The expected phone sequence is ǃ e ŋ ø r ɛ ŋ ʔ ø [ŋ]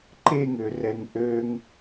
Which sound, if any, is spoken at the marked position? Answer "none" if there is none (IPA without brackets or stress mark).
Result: ŋ